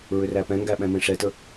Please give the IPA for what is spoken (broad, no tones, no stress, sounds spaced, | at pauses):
ɹ ʏ r æ p ɛ̃ ŋ ɡ æ ɓ ɛ̃ m ẽ ʂ ɛ t ə